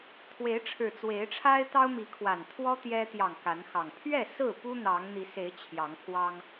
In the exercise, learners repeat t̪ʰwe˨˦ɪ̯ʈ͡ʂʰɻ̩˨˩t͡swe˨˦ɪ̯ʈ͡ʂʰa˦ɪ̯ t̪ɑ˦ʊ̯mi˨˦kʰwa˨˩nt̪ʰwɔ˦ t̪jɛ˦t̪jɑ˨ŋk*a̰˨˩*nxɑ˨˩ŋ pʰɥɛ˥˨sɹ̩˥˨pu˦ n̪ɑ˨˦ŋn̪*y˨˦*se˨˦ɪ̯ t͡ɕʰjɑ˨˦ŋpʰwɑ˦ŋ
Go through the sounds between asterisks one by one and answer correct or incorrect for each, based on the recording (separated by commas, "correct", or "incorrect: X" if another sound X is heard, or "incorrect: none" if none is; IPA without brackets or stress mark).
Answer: incorrect: a˨˦, incorrect: i˨˦